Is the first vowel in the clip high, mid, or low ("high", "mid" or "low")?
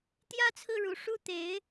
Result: low